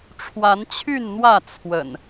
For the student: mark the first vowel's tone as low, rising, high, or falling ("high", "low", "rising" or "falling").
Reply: rising